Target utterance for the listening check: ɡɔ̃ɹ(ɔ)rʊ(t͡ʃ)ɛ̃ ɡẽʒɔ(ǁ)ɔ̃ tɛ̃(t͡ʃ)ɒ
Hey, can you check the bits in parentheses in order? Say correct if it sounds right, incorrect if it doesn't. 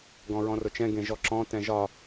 incorrect: ɔ̃, correct, correct, incorrect: ʒ

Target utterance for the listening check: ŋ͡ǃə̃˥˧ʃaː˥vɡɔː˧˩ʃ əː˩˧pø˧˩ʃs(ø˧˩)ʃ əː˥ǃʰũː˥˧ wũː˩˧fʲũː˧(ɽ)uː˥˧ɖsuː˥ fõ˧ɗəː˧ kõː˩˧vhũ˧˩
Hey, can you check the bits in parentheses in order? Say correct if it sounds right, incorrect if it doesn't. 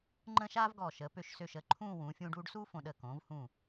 correct, incorrect: ɖ

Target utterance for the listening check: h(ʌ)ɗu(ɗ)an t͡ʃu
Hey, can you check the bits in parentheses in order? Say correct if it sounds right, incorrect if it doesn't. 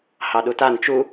incorrect: ɑ, incorrect: t

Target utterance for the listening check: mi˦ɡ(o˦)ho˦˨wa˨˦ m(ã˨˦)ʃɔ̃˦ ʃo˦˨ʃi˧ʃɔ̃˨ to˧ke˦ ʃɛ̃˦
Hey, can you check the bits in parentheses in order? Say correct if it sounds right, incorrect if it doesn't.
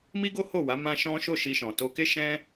correct, incorrect: ã˦

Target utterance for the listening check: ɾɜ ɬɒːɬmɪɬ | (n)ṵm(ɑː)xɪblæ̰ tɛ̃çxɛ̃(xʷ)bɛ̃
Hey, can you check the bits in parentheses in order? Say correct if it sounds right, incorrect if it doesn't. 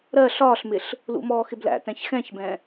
incorrect: l, incorrect: ɔː, incorrect: ç

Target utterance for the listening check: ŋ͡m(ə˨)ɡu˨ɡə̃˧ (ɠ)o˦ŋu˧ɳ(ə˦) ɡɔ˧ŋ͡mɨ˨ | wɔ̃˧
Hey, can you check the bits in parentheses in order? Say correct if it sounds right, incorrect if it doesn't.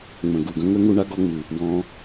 incorrect: ə̃˨, incorrect: ŋ, incorrect: a˦

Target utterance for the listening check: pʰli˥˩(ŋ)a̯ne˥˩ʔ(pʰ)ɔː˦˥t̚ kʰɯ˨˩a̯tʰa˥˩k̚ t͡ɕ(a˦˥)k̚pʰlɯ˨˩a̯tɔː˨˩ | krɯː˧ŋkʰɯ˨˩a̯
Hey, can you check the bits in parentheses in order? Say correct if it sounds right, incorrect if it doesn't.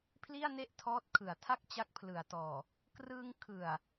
incorrect: none, incorrect: tʰ, correct

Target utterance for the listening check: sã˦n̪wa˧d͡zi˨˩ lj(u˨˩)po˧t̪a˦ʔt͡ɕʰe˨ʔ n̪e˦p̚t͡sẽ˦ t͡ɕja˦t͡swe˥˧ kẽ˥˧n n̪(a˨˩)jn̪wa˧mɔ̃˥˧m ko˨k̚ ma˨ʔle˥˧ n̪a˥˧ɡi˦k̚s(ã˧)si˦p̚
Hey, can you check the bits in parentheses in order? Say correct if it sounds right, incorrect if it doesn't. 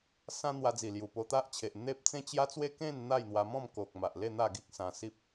correct, incorrect: a˥˧, correct

